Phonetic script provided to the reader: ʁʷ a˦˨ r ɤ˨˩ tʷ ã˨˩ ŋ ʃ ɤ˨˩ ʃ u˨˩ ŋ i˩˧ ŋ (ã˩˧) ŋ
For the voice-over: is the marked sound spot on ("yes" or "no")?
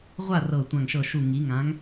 yes